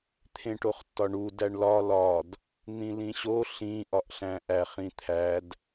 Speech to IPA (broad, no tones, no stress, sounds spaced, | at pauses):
t̪ʰ ẽ ʈ o χ tː ɒ ɳ u d æ ɳ l ɒ l ɒ d | n̪ ĩ l ĩ ɕ o ɬ ĩ ʔ ɒ ʔ ɬ æ̃ ʔ æ χ ĩ t̪ʰ æ d